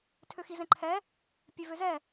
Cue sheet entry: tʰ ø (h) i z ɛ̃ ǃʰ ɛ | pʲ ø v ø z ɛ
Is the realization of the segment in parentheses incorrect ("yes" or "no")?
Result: yes